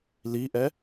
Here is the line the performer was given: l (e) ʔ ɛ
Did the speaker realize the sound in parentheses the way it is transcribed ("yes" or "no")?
no